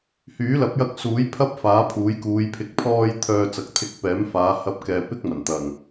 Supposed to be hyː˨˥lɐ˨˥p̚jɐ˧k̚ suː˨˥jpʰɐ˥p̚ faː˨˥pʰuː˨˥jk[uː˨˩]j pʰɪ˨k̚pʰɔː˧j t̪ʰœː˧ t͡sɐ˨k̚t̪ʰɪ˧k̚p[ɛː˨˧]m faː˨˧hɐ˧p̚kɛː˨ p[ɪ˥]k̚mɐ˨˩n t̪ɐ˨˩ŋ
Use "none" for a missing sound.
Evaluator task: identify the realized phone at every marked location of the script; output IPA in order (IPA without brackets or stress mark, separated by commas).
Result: uː˨˧, ɛː˨˥, ɪ˥